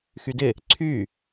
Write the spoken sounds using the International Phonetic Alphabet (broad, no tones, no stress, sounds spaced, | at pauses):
x y d ɪ | ǀʰ y